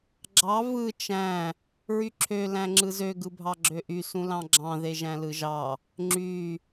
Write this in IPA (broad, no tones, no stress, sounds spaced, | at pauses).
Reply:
ɡ͡ǁ ɑ v ɯ t͡ʃ æ̃ | ɹ y ǁʰ ø l æ̃ ŋ͡ǁ ɯ z ø ɡ ɯ bʱ ɑ ɡ͡ǁ ø ʔ y s ũ l ɑ̃ ɡ͡ǁ ɑ̃ ð e ʒ æ̃ l ɯ ʒ ɑ | ŋ͡ǁ y